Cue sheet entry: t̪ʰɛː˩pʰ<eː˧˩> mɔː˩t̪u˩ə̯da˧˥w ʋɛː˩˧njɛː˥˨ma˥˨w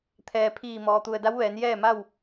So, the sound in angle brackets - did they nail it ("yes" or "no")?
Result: no